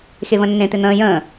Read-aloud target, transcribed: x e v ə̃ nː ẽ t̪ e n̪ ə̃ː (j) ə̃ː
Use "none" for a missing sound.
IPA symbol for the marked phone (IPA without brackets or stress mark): j